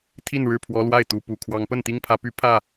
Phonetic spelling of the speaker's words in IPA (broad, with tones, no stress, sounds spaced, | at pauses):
t̪ʰ i˥˨ n ɻ ɻ̩˥˨ pʰ w ɔ˨˦ l w a˥˨ ɪ̯ t̪ u˨˦ p u˨˩ kʰ w ɑ˨˦ ŋ p ə˥˨ n t̪ i˦ ŋ pʰ ä˨˦ p y˦ pʰ ä˥˨